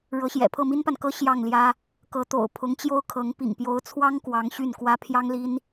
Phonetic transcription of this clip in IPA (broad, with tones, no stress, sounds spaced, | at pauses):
ɻ ɤ˧˥ ɕ j ɛ̰˨˩ pʰ ɤ˥˩ m i˥ n p a˨ n k ɤ˥ ɕ j ɑ˥˩ ŋ l j ä˥ | k ɤ˧˥ t̪ o̰˨˩ ʊ̯ pʰ ʊ˧˥ ŋ t͡ɕ j o˥ ʊ̯ kʰ ɤ˧˥ ŋ p ḭ˨˩ ŋ p j o˧˥ ʊ̯ t͡sʰ w ɑ˥ ŋ k w ɑ˧˥ ŋ ɕ y˥˩ n k w ä˥ pʰ j ɑ˥ ŋ l i˥ n